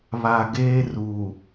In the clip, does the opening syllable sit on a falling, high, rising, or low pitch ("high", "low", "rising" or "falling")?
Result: low